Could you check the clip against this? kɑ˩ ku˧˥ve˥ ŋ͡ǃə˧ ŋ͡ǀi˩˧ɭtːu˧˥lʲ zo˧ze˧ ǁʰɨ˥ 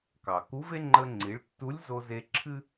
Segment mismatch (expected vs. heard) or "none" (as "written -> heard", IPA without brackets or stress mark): none